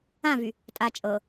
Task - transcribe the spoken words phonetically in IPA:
ã v y | tʼ a t͡ʃʼ ɤ

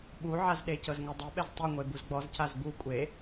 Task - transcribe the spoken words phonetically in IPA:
ɓ u ʕ a z ɗ e c ɤ z ŋ ɛ dˤ i ɓ ɛ z tˤ i ŋʷ e b u z ɡ͡b ɔ z c a z b u kʷʼ e

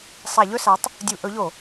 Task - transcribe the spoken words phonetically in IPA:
sˤ a˧˩˧ ʎ ɵ˥˨ s a˨˥ tˤ | dʲ u˧˩˧ ʔ ɵ˨˥ ʎ o˧˩˧

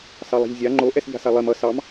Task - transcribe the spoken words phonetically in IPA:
s ɑ lˠ a̤ ʎ zʲ a ŋ͡ǃ o ʔ ɛ s ʎ a̤ s a lˠ e m ʌ s ɑ m

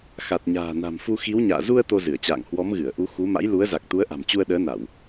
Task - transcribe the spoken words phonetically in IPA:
x a˨˩ t̚ ɲ a̤ː˨˩ n a̤˨˩ m f u˧ x i˨˦ w ɲ a̰ː˧˨ z u˧ ə̯ t̪ o˧ z ɨ˧˩ ə̯ t͡ɕ a̰ː˧˨ ŋ h w ɔ˨˦ m ɣ ɨ˧˩ ə̯ ʔ u˨˦ x u˨˦ m a̰˧˥ j l u˨˦ ə̯ z a˨˩ k̚ t̪ u˨˦ ə̯ ʔ a̤˨˩ m t͡ɕ u˧ ə̯ ɗ əː˨˦ n a˧˩˨ w

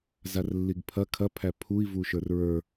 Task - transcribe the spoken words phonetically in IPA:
z a r lː i ɡ pʰ ɐ kʰ ɐ pʰ æ pʰ u i̯ v u ʃ ə˞ r ɹ ə˞

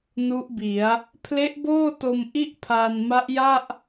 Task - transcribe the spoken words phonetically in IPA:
n u˦˥ ʔ b i˩˦ a̯ | pʰ l e˦˥ ʔ b oː˥˩ t o˧ m ʔ i˥˩ ʔ pʰ aː˧ n m a˦˥ ʔ j a˥˩ ʔ

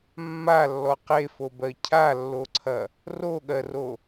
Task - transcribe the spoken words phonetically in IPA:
mː a lː ɔ q e f o b ɜ cʰ a lː o ǀʰ ɐ | r o ɠ ɜ r o

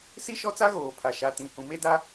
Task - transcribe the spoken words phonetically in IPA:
s i˦ ʃ ɔ˦ t͡s a˦ ɣ oː˨ pʰ a˨ ʃ a˨ t ĩ˨ h ũ˨ m e˦ d a˦

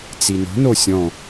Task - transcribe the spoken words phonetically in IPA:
t͡s i n o̤ n o sʲ ɔ̃

